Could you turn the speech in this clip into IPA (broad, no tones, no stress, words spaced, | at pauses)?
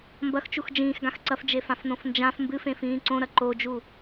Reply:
mbɐxt͡ʃux d͡ʒĩːxɡãx ǀɐfd͡ʒefãfnõf nd͡ʒãf mbɨfẽfĩː ǀõɾɐ ǃod͡ʒu